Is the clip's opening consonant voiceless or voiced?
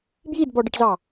voiced